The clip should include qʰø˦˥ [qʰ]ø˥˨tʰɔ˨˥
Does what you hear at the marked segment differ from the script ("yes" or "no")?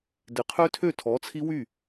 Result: yes